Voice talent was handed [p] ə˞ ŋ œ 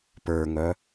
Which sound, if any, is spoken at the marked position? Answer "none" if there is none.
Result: p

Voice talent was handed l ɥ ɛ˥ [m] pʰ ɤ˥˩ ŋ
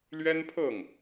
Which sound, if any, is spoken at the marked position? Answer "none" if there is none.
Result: n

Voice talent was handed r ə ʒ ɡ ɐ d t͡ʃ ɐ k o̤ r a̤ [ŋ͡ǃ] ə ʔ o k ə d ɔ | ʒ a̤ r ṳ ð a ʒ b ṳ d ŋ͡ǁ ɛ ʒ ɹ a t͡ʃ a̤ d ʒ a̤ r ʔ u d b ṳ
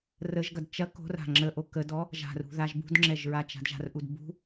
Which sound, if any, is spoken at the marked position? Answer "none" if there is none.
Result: ŋ͡ǁ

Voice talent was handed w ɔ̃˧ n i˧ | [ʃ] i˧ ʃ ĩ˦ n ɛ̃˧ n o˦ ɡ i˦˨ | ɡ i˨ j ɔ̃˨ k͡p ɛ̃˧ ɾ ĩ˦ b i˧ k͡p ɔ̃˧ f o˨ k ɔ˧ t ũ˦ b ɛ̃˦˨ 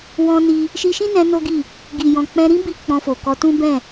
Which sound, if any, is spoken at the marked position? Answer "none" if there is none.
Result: ʃ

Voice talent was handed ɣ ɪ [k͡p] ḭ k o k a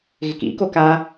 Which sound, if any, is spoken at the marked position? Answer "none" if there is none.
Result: k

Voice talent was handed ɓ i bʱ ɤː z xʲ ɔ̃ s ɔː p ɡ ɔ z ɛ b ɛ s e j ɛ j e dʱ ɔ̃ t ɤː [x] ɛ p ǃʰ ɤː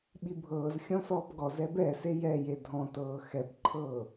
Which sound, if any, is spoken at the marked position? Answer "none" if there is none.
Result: x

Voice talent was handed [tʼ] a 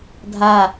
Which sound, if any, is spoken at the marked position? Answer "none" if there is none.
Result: dʱ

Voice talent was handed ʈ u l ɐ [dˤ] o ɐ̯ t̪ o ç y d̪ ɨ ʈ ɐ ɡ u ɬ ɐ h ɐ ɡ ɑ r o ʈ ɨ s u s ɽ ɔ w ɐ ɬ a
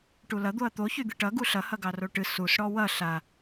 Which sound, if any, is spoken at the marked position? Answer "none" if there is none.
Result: d̪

